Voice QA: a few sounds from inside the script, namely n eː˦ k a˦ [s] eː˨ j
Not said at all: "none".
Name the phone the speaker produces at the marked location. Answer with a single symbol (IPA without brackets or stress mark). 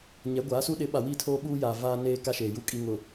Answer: ʃ